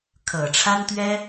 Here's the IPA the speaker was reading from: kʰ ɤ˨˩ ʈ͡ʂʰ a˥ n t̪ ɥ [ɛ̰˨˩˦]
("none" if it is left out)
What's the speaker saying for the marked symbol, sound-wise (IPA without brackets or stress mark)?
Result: ɛ˥